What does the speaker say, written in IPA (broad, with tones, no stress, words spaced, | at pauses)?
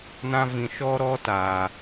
nã˦vĩ˨ ʃɔ˦ɾɔ˦ taː˨